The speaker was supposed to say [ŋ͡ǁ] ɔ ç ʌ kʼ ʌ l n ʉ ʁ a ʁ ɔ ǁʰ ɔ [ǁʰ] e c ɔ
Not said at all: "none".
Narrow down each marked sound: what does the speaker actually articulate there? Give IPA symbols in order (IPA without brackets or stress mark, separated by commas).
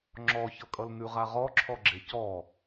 ŋ͡ǁ, ɡ͡ǁ